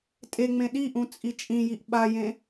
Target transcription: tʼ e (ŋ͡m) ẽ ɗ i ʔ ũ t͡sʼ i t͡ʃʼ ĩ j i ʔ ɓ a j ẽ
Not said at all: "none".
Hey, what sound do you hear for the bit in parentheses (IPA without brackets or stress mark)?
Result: ŋ͡m